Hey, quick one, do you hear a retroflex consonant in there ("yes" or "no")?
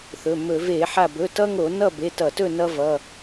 no